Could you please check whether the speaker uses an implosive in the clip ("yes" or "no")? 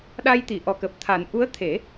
yes